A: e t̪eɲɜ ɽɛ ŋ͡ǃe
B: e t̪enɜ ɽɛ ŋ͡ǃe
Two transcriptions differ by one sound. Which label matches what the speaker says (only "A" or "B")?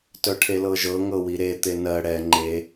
B